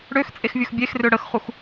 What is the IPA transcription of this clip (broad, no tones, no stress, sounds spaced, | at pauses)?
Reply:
ɽ ø x t͡sʼ e x vʲ ɵ x bʲ e x r ø ɽ ə x χ u x